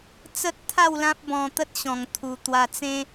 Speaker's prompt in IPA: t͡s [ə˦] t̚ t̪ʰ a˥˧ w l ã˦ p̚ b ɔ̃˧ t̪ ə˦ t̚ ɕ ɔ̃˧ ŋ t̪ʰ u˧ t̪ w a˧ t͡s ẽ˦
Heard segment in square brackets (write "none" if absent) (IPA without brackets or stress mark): ə˦